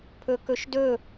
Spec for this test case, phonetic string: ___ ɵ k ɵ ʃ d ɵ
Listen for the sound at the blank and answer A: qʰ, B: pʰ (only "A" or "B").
B